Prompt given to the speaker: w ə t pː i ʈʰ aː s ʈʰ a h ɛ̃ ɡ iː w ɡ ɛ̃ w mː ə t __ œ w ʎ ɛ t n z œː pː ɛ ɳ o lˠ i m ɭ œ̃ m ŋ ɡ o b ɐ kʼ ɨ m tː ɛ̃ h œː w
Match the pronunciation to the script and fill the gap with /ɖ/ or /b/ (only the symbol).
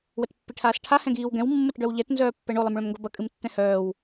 ɖ